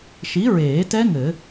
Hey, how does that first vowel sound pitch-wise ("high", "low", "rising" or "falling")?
rising